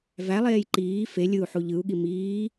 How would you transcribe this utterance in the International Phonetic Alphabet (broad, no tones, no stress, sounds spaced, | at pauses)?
v æ lˠ eː j ǃ iː f e lʲ ɯ u̯ ħ u ʎ ɯ u̯ ɠ i m iː